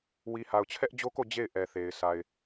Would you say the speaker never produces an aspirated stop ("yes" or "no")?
no